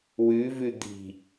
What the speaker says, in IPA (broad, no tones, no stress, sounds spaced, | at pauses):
w ʉ v ʉ d̪ i̤